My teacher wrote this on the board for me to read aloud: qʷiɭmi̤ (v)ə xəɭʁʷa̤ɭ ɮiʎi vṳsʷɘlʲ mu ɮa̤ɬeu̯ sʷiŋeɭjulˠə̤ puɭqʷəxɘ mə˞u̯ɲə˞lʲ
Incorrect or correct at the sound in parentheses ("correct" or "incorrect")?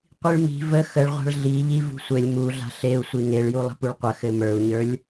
correct